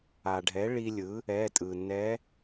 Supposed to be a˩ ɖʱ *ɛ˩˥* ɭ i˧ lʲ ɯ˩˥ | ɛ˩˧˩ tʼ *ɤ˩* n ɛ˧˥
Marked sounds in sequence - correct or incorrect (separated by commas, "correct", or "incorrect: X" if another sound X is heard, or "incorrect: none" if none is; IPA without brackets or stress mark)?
correct, incorrect: ɯ˩